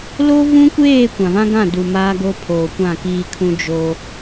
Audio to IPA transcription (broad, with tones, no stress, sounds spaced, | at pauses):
l o˦ v ũ˦ kʷ eː˦˨ kʷ ã˨ v ã˦ ɡ ã˦˨ d u˨ m aː˦ ɡ o˦ pʰ oː˨ kʷ ã˦˨ k iː˦ kʰ ũ˦ d͡ʒ o˦